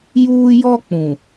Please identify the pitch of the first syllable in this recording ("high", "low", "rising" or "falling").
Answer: high